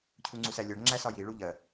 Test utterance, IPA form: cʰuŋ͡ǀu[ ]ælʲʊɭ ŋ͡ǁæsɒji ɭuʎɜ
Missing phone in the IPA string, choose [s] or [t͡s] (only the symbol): s